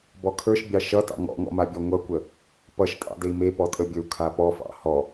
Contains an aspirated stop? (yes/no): yes